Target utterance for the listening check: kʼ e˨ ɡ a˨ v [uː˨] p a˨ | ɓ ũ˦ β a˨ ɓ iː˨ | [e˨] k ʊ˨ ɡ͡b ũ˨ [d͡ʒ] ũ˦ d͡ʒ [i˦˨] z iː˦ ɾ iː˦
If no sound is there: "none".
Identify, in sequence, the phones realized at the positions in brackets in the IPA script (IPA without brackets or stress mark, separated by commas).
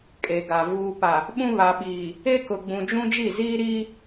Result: uː˨, e˦, d͡ʒ, i˦˨